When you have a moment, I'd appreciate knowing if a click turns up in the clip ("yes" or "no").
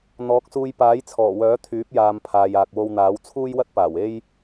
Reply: no